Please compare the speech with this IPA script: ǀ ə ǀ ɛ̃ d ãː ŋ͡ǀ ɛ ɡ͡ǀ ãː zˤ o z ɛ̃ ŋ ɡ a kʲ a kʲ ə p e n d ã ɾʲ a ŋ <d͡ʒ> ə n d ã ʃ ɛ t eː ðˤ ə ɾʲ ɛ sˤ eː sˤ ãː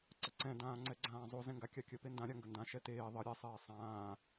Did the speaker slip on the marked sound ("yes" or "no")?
yes